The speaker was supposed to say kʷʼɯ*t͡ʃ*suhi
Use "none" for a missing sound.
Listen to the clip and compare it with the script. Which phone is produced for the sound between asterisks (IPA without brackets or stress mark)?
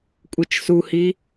t͡ʃ